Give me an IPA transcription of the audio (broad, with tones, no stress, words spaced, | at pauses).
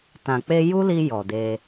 tã˨k͡pe˧ ju˦li˧ jɔ˨de˧